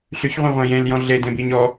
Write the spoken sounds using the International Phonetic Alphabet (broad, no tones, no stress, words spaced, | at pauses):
ɬyçʁʷĩʁʷẽ jẽljɔ̃ ɮedẽbiɲ ɔ